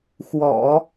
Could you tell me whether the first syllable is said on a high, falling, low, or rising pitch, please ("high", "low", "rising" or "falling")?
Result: low